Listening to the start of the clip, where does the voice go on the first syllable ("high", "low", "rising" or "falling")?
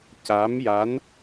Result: rising